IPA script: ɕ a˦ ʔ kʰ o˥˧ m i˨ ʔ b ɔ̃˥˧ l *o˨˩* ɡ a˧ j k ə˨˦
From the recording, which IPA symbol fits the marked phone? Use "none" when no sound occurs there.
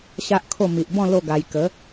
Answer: o˥˧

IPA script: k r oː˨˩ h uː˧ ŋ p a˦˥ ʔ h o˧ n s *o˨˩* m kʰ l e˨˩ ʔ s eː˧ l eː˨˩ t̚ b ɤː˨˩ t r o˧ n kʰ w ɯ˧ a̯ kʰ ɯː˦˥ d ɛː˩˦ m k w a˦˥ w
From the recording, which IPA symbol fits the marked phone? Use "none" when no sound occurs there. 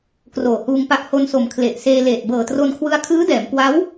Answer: o˨˩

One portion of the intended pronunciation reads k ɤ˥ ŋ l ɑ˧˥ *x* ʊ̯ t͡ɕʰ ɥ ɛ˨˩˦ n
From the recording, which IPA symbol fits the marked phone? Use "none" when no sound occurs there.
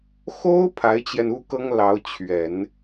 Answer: none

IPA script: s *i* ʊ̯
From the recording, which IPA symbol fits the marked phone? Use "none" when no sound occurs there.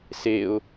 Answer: e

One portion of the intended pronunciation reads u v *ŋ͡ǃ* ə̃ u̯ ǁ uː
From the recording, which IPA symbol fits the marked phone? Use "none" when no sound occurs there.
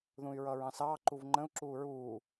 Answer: ŋ͡ǃ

